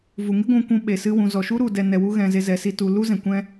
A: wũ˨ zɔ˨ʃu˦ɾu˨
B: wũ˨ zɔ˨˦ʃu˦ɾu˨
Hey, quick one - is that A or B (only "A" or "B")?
A